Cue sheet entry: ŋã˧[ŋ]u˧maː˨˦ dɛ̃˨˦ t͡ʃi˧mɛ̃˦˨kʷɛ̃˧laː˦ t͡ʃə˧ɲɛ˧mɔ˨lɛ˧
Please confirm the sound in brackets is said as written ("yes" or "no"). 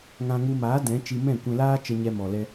yes